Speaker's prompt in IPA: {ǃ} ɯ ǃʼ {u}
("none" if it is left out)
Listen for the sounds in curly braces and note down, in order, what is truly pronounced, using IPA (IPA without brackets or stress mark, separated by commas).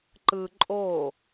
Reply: ǃ, o